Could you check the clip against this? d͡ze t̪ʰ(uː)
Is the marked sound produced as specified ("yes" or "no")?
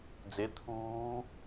yes